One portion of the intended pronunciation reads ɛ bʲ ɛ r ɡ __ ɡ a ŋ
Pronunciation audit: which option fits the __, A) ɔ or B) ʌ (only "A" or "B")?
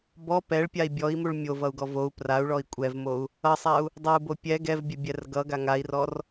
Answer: B